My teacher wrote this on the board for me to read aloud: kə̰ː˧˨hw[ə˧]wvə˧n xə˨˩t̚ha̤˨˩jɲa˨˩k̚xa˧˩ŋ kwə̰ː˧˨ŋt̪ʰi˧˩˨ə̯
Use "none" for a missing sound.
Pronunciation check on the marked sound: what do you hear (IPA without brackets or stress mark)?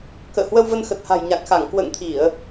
ə˧